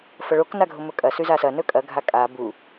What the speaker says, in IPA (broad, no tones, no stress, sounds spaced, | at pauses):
f ɐ ɭ o k n a ɡʱ o m ɵ kʼ ɐ s ʉ z a s ɐ n ɵ kʼ ɐ ɡʱ a kʼ a b u